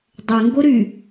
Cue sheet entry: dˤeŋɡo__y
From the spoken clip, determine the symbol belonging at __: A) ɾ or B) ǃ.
A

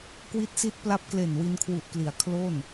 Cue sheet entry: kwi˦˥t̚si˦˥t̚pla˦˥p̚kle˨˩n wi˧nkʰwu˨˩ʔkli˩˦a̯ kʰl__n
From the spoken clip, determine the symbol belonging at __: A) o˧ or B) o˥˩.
B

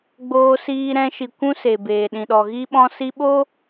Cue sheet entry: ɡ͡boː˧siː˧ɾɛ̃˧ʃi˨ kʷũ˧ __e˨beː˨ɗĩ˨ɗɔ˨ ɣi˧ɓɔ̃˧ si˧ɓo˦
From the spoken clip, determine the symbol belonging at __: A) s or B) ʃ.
A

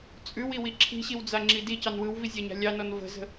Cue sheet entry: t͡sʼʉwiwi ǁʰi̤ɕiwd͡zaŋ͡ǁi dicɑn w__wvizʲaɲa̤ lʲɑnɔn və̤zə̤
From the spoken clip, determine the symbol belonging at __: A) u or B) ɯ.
B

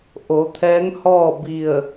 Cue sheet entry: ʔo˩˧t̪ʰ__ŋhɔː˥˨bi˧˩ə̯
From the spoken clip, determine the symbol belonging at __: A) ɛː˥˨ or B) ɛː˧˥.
B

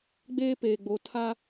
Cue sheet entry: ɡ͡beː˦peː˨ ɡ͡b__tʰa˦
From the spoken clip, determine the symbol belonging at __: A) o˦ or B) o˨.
B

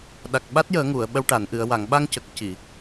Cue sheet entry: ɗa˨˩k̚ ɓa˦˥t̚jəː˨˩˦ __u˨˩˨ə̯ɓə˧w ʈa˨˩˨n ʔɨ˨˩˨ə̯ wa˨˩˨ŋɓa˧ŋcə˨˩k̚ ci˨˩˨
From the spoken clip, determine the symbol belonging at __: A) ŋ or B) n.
A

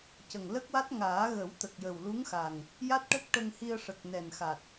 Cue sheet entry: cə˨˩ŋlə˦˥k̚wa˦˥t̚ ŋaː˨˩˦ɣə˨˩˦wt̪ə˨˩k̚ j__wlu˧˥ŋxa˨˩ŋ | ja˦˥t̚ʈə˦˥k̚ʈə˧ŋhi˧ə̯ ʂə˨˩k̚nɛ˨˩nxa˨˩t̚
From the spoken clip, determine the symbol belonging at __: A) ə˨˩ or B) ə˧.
A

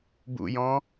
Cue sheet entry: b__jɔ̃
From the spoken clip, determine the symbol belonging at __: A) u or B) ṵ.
B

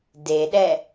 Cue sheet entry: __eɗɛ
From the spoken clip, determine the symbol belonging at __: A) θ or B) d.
B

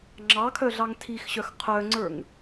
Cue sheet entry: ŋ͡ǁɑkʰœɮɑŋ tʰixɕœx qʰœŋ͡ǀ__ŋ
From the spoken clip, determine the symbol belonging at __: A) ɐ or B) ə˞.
B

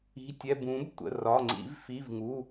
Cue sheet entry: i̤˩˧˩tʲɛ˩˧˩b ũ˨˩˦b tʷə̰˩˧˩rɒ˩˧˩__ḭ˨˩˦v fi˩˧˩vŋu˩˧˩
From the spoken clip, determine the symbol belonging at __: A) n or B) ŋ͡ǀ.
B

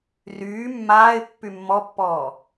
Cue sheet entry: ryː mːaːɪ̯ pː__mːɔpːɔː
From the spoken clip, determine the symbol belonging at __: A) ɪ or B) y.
B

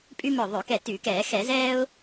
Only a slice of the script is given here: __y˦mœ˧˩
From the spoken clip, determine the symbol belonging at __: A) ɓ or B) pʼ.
B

